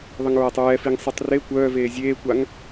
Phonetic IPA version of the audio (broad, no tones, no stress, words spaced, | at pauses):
ðˤəŋɹatˤɹɛfiŋ sˤɛtˤre kʷœːveː zʲeːkʷaŋ